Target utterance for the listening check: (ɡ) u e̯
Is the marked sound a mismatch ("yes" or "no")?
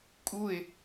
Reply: yes